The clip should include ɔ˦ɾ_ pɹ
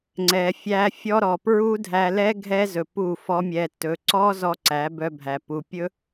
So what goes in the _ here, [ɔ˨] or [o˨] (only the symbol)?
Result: ɔ˨